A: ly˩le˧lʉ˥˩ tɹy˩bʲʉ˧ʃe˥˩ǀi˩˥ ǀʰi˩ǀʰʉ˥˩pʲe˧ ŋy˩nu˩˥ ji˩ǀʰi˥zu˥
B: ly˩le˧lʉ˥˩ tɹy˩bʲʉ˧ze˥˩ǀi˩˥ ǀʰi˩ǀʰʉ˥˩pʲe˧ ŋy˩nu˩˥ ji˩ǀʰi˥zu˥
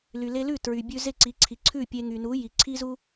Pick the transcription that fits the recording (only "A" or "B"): B